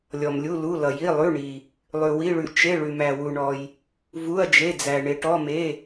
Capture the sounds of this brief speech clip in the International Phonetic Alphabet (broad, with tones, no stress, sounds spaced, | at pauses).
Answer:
lʲ ɔ˩ m lʲ u˩˧˩ l u˩˧˩ l ʌ˩ j i˩˧˩ lˠ ʉ˩˧˩ ɳ i˩ | lˠ ʉ˩ w i˩˧˩ ɭ ʉ˩ t͡ʃ e˩˧˩ ɭ ʉ˩ m æ˩ w u˩ ɳ ɔ˩ j | v u˩˧˩ ɐ̯ d͡ʒ e˩˧˩ d͡z æ˩ ɳ e˩ ʈ ɔ˩˧˩ m e˩˧˩